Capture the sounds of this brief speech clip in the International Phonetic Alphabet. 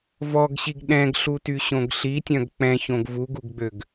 v ɔ ɡ ɕ i ɡ ɗ ɛ̃ ɡ ɬ u t y ɕ õ ɡ ɬ i tʲ œ̃ ɡ k͡p ɛ̃ ç õ ɡ v u ɡ u ɡ ɡ͡b ø ɡ

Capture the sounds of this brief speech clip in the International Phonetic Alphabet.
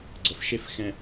ɡ͡ǀ ə˨ f ʃ e˦ f x ɛ̃˨

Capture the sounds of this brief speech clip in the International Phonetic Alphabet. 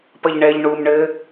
p ɐ ʎ ɳ ɛ ʎ ɳ u m ɳ ɘ

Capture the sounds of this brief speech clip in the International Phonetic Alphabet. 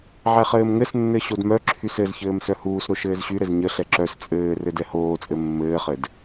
ʕ ɛ χ ɘː m ŋ ɘ s nː ɘ ɕ o d m œ ǁʰ y s ɘ z ç ɘː m s œ h uː s ɾ o ʃ ɘː z ɕ y ɾ ɘ z ɲ ə ɬ ɛ ǁ œ s t͡sʼ ɘː r ɘ d ɛ h oː t͡sʼ ɘ mː ɘː χ ɘ d

